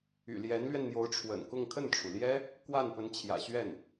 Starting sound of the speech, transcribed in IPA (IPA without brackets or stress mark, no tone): y̰